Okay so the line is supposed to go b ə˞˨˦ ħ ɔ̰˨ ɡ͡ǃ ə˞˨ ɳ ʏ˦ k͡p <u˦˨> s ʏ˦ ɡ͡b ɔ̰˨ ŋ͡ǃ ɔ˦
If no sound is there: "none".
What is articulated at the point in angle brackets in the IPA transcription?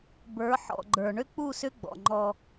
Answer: u˦˨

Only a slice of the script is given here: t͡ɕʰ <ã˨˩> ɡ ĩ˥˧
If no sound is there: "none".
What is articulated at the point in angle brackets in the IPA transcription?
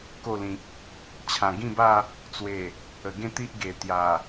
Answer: ã˨˩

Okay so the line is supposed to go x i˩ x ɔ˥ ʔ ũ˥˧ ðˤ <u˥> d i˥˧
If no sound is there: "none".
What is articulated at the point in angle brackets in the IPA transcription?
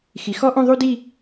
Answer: u˥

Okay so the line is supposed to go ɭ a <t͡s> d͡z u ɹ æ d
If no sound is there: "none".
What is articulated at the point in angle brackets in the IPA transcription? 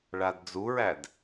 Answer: d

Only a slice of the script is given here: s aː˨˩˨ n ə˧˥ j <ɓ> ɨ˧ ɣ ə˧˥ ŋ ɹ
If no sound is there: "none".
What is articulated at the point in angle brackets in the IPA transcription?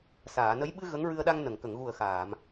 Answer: ɓ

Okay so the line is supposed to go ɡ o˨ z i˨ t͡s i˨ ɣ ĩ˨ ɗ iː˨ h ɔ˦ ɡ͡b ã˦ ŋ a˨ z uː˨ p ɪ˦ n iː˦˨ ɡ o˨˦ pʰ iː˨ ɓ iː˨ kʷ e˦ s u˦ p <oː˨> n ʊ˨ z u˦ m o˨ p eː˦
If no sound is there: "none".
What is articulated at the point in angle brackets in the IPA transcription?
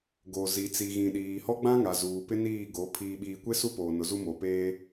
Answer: oː˨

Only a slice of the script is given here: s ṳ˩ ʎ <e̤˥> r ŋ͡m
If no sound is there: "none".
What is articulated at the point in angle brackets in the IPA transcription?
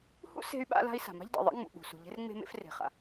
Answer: e̤˥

